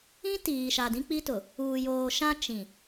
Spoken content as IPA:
ĩ˦ t iː˨ ʃ a˨ d ĩ˦ k͡p i˦ t ʊ˨ | uː˨ j oː˨ ʃ ã˦ t͡ʃ ĩ˨

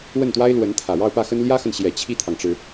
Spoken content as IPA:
w ə˥˩ n t̪ w a˥ ɪ̯ l w ə˧˥ n t̪ʰ ä˨˩ ɻ ɑ˥˧ ʊ̯ p ä˥˩ x ə˥ n l j ä˥ x ə˨ n ɕ j ɛ˨˩ t͡ɕʰ i˥˩ t̪ʰ ɑ˩ ŋ ʈ͡ʂ ɻ̩˩

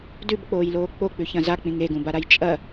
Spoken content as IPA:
d ʉ b k͡p oː j l oː k͡p o k͡p ʉ ç ɐ̃ z a k͡p ĩ ŋ e ɡ ũ b a ɾ a j t͡ʃʼ ɐ

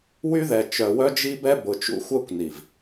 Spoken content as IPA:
w y˦ ð ɛ˨ t͡ʃ œ˨ w œ˦ d͡ʒ i˦ b ɛ˦ b ʊ˨ t͡ʃ ṵ˦ xʷ œ˦ kʷ n i˨ v

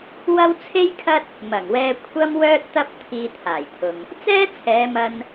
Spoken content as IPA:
w ɐ˥ w t͡sʰ e˥ j kʰ ɐ˥ t̚ | m ɐ˨˩ ŋ w ɛː˧ kʷʰ ɐ˥ m w œː˥ t̚ t̪ ɐ˥ p̚ t̪ʰ iː˧ t̪ʰ aː˨˩ j t̪ʰ ʊ˨ ŋ | t͡s ɛː˥ t͡sʰ ɛː˨˧ m ɐ˧ n

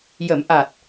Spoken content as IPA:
j ə˨˩˦ m ʔ a˨˩ t̚

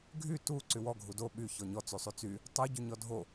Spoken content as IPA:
ɡʱ y t u ǀ y w ɔ ɡʱ u d o ɓ y ç ɔ ɲ ɔ t͡s y sˤ y t͡s y | tˤ u ɟ y ɲ ɔ dʱ o

